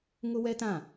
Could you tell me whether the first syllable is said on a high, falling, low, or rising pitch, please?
high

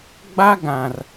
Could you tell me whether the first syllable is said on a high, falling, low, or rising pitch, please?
high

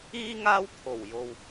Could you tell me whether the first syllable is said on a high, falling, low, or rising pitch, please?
high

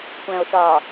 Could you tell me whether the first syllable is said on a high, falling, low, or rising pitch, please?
low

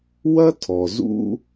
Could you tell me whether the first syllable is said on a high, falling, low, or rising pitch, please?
high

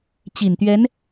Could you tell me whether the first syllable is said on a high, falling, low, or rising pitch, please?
low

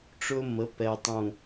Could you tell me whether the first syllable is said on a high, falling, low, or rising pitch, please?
high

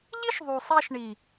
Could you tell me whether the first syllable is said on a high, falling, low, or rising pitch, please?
high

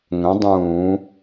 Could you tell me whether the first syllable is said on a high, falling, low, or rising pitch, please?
rising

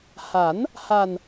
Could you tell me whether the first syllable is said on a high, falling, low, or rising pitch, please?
rising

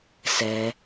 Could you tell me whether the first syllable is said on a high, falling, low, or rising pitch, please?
low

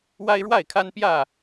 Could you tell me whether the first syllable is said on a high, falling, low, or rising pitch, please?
high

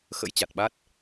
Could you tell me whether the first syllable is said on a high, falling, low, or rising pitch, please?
rising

